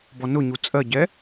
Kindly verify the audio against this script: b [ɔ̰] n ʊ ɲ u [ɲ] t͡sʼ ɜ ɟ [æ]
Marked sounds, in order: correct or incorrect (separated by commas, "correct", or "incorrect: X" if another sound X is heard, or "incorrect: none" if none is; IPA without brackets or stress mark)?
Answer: incorrect: ɔ, incorrect: none, incorrect: ɛ